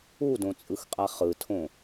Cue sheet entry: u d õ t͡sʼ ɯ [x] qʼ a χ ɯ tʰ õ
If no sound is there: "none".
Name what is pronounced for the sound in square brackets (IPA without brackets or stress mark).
x